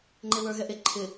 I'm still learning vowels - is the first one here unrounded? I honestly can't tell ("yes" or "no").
yes